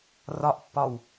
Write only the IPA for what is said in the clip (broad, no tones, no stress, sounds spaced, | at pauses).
r ɒ ʔ pː ɒ w